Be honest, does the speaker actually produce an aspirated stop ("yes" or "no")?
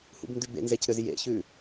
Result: no